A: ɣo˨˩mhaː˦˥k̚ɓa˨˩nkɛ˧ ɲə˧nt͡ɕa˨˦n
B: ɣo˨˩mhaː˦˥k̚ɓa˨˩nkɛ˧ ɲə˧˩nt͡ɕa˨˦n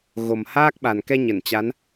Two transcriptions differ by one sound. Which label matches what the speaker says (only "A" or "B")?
B